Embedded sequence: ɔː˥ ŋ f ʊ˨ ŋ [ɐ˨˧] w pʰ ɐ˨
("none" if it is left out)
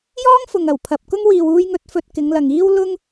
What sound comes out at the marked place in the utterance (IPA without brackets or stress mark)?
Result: ɐ˨˩